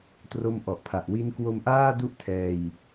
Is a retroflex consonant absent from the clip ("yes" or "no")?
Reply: yes